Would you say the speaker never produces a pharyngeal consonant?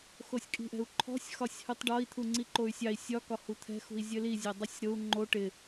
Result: yes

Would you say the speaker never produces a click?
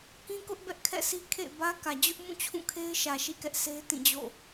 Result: yes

